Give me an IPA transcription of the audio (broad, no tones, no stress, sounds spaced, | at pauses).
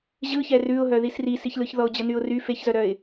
ʑ ɯ ç ɛ r ʉ ʊ̯ ɦ œ ð i s r i s i ç l ɯ ç ð ɔ ʊ̯ d͡ʑ ə n y ʊ̯ r y f e ç z œ ɾ œ ɪ̯